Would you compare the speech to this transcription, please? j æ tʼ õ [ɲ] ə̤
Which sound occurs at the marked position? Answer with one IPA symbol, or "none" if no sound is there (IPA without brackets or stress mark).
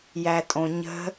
ɲ